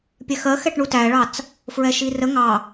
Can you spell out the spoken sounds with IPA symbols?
pʲ ɛ x ɜ x ɛ ʈ ɳ u t æ ɭ ɑ t͡s | f ɹ ɛ ʃ i r ə ŋ ɑ

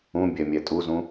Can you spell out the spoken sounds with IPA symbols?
ũ bʲ ɛ mʲ ɛ tʼ u z ũ

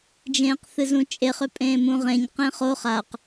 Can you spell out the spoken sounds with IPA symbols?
d͡ʒ ẽː q θ ɨ z ũ t͡ʃʼ e χ ʏ pʼ ẽː m ũ ʁ ẽ ɲ q ẽ χ o χ a q

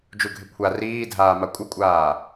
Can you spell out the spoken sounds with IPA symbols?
d͡ʒ u ɡʱ ɪ kʷʰ a r iː dʱ aː m a kʷʼ ɪ kʷʼ aː

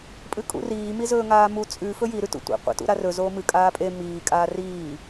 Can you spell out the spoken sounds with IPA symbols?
pʼ ɨ kʼ ṵ r iː m i z ɵː ŋ aː m u t͡sʼ ʉ f ɵ j i ɾ ʉ t ṵ tʷ ḛ qʷ ḛ t ṵ ɾ a r ɵ z oː m ɨ kʼ aː pʼ e m iː kʼ aː r iː

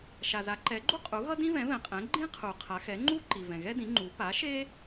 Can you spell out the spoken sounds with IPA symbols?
ʃ a˩ z a˩˥ ǃ ɛ˩˥ ɡ͡ǃ u˥ qʼ u˩˥ ɣ ʌ˥ d ĩ˥ v ɛ̃˩˥ v ɛ̃˩ qʼ ɛ̃˩˥ ɡ͡ǃ ĩ˥ qʰ u˩ qʰ a˩˧ x ɛ˩˥ ŋ͡ǃ u˥ ǃ i˩ v ɛ̃˩ ɣ ɛ˥ d ĩ˩˥ ŋ͡ǃ u˩˥ p a˩˥ ʃ e˥

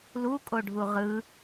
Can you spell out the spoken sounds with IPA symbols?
l u kʼ o ɖʱ u ʁ ɯ

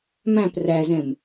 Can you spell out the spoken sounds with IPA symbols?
m æ̃ p r æ z ɛ̃ m

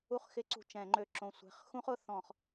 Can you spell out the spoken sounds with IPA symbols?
u˥˩ χ x ɪ˦˥ ǀ ṳ˧˩ t͡ʃ ɛ̃˧˩˧ ŋ͡ǃ ø˧˩ ǁ õ˧˩ sʷ ɛ̤˧˩ χ x ũ˦˥ χ ʊ˧˩˧ θ ɔ̃˧˩˧ χ

